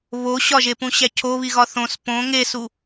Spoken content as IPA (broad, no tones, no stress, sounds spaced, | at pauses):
β o ɕ ɒ ʒ e p ũ ɕ æ cʰ o β i ɣ ɒ θ õ s p õ ŋ e s u